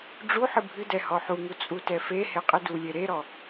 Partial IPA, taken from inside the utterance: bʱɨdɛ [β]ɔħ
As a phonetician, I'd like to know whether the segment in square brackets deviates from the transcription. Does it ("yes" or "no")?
yes